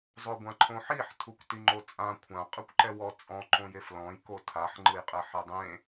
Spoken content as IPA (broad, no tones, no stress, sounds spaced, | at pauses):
zˤ o ɡʷ ã ǃʰ õ ħ i ħ tʰ u kʷ t i ŋ͡ǃ o t͡sʼ ã kʷʰ ã qʼ ɯ kʷ ǃ ɛ w ɔ t͡sʼ ɔ̃ ǃ õ j e f l ɔ̃ j k o tʰ a ħ ŋ͡ǃ ɯ j qʼ ɛ ħ ɛ dˤ ẽ